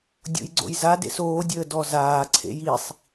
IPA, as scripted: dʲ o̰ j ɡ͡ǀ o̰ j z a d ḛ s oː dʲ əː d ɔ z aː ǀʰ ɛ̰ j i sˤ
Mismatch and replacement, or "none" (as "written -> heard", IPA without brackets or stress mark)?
ɛ̰ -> ḛ